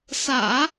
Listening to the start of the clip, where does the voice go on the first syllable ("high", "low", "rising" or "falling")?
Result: low